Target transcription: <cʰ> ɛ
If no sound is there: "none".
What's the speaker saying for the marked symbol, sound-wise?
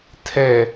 tʰ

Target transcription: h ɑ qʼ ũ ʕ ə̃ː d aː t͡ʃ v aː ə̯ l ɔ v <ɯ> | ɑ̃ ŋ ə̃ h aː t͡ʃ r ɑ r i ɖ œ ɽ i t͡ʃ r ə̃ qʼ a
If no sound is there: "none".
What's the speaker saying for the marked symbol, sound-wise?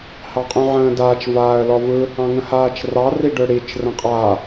ɯ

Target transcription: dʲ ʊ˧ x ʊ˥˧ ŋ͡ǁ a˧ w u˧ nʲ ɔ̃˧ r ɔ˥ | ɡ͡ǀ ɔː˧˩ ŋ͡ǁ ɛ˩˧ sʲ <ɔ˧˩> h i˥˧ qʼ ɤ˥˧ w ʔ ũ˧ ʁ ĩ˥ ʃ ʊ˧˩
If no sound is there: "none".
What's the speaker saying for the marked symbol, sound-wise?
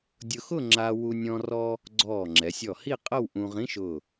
ɔ˧˩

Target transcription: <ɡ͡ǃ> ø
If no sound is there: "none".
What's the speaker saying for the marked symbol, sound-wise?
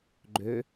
ɡ͡ǃ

